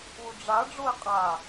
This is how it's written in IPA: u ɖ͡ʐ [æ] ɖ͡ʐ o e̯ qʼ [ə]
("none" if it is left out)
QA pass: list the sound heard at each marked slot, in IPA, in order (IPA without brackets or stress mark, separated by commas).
a, a